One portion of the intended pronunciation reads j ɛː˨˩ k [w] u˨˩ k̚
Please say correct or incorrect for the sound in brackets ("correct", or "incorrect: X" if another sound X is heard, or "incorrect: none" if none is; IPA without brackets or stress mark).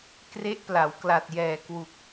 correct